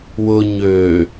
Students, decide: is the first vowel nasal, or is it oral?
oral